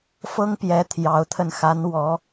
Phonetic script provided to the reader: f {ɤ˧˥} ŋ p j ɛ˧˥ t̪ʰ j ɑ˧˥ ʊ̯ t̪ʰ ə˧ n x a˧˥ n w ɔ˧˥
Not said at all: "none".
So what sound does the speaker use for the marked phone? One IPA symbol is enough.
ɤ˥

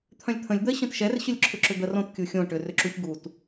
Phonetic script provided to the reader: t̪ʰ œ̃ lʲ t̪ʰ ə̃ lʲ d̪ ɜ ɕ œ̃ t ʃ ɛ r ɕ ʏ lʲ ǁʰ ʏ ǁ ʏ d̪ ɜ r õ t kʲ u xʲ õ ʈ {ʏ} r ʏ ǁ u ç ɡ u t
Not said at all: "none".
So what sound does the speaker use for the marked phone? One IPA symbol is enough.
ʏ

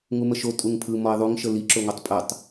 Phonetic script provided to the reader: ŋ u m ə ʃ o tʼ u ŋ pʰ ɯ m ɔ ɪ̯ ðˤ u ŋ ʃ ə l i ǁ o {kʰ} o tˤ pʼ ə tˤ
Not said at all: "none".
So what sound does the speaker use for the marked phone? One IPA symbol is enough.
ŋ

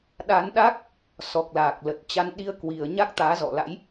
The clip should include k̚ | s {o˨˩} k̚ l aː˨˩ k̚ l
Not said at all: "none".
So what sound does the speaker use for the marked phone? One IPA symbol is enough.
ɔ˨˩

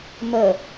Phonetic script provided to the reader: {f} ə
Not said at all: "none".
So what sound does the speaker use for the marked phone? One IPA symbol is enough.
m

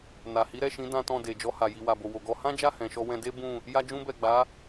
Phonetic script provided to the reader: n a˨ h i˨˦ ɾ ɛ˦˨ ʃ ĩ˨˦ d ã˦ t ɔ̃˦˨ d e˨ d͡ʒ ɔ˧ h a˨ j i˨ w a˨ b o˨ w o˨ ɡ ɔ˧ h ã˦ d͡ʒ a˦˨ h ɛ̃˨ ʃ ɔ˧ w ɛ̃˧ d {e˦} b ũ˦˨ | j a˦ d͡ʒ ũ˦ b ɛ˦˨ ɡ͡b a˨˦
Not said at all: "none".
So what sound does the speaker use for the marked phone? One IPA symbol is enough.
e˦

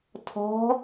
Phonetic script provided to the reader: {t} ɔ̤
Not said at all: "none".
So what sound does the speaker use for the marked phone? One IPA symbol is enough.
tʰ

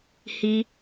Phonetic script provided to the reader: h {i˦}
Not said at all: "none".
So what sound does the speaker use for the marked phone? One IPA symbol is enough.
i˦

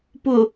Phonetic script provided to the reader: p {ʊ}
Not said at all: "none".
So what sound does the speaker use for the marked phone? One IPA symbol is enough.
ʊ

